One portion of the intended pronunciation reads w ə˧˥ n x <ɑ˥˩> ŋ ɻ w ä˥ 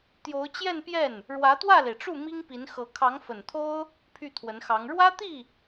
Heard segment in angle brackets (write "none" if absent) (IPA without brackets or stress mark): ɑ˧˥